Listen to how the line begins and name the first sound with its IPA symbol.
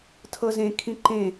tʰ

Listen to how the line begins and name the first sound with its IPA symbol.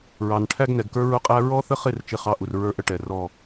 ɹ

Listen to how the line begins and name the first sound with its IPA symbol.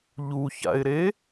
ʎ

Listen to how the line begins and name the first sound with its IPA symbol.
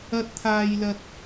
ɐ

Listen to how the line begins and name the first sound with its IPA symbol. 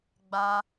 ɡ͡b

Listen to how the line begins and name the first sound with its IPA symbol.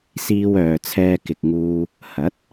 s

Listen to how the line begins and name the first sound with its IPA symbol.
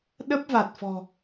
ɗ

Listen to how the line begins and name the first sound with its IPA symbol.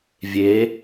vʲ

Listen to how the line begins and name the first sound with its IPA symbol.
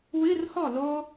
w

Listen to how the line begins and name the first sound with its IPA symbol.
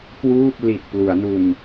k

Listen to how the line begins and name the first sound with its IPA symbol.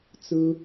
t͡s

